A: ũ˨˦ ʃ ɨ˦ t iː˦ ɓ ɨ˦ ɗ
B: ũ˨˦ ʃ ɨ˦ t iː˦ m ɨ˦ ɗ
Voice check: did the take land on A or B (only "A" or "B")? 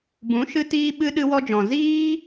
A